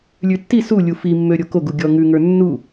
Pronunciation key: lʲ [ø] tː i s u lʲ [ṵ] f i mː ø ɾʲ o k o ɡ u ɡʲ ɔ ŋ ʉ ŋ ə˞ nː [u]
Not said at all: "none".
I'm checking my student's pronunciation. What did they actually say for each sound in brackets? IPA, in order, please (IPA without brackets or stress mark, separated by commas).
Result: ʉ, u, u